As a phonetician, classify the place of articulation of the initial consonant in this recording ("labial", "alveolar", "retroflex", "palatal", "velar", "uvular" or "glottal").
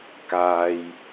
velar